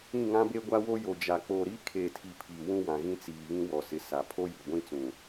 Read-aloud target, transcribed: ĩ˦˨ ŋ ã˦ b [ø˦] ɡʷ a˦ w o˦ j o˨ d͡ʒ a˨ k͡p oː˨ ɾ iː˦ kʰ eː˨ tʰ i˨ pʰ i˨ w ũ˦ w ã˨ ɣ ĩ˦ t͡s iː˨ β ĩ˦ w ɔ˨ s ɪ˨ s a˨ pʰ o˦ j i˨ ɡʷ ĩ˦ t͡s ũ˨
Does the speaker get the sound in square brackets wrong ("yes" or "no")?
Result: yes